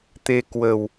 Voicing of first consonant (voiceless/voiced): voiceless